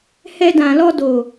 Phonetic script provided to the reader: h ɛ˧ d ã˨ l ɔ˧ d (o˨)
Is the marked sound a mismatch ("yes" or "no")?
no